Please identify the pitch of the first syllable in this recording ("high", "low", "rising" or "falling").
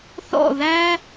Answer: falling